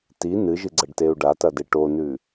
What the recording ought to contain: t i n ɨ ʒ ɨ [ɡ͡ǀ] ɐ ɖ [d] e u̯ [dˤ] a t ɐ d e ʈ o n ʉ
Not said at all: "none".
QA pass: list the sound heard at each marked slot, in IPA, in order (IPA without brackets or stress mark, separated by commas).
ɡ͡ǀ, t, ɖ